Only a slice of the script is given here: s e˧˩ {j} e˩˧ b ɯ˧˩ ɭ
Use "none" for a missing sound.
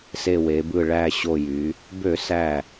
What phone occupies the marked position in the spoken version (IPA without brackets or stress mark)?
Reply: w